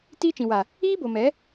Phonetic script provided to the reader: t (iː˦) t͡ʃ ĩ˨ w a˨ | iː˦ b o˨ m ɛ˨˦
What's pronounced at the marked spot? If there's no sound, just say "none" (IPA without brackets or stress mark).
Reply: iː˦